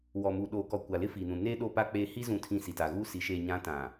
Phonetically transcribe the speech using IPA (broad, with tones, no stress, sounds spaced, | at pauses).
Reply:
w ɔ˨ m u˨ ɗ oː˨ k ɔ˨ kʷ a˨ l ɪ˦ f iː˨ n ũ˨ n eː˦ ɗ o˦˨ p a˦ k͡p eː˦ h i˦ z ũ˨ tʰ ĩ˨ s i˨ t a˨ ɣ uː˦ s i˨˦ ʃ eː˨ ɲ ã˨˦ t ã˨